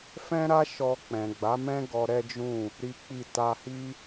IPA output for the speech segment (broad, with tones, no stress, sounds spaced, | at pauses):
f ɛ̃˦ ɾ a˦ ʃ ɔ˧ k͡p ɛ̃˨ ɡ͡b a˨˦ m ɛ̃˦ ɡ ɔ˧ ɾ ɛ˦ d͡ʒ ũ˦˨ | ɾ i˦ k͡p i˦˨ t a˧ h i˦